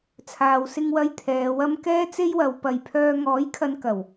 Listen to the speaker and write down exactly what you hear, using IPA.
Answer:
t͡sʰaː˨wsɪ˧ŋwɐ˧j t̪ʰɛː˨˧wɐ˥m kɛː˥t͡se˥jwɐ˨˧w pɐ˨jpʰœː˧ ŋɔː˨˥jkʰɐ˨˧n kɐ˨˩w

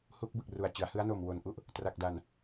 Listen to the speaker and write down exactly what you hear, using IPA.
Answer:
huː˦˥k̚bɯ˨˩k̚ru˨˩a̯t͡ɕɯ˩˦a̯ hɯ˦˥a̯no˨˩m wo˨˩nʔu˥˩ʔ | tra˨˩k̚da˨˩n

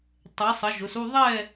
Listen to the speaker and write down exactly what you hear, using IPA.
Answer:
tˤɛ˨˦ sˤə˨˦ʒʊ˨˦su˥˧ ðˤɛ˥˧

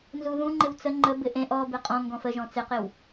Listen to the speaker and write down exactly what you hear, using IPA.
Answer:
nzuðũ ŋ͡ǃɪwt͡sə ŋ͡ǃə bɪʔẽʔ ɔ beqʼɔ̃ ŋɡɔ̃fəʒɔ̃ t͡sɪqɪw

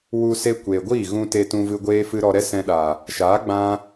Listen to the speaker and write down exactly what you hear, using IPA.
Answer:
wu˧se˧ kʷeː˨ɡʷiː˦˨ɣũ˧ te˧tũ˧vɨ˧ ɡʷeː˦fɨ˦ ɾɔ˧ɾɛ˦sɛ̃˧ɗa˨ | ʃaː˨˦ɡ͡bã˧

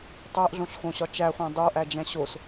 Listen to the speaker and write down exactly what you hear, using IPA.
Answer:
tˤæʔɮõɬxõɕɒ t͡ʃæχʷæ̃ dˤoʔæd͡ʒæ̃ ɕos

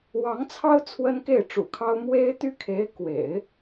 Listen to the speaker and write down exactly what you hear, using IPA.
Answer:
wɑ˧˥ŋt͡sʰɑ˥ʊ̯ t͡sʰwə˥nke˥˩ɪ̯ʈ͡ʂṵ˨˩kʰɑ˥ʊ̯ mwe˥ɪ̯ t̪y˥kʰe˧˥ɪ̯ kwḛ˨˩˦ɪ̯

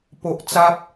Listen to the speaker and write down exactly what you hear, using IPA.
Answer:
po˨ʔt͡sa˦p̚

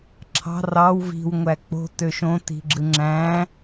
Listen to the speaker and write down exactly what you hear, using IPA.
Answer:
ǁʰɑ̤ rɑw vi̤w ŋʷæk͡po̤ tøʃõ ti̤ɡ͡ǁɯŋ͡ǁæ̃

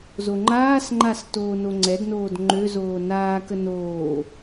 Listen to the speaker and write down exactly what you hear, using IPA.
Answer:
zoŋ͡ǃaːsŋ͡ǃas toːnoŋ͡ǀɛdnoːd ŋ͡ǃøzoː naːkə noː

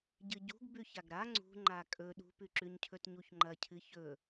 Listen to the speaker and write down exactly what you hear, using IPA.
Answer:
ɟɨɟṳɡ bʉçaɡɾa ŋ͡ǀṳ ŋ͡ǃakʼɵ ɗṳpʉǁʉɲcʰɵt ɲuçŋ͡ǃɐcʰɨ çɵ

